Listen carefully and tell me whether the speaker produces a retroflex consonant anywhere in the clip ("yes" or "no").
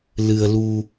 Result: no